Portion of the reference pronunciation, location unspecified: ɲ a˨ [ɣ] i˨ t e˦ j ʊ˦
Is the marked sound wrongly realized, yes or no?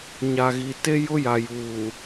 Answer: no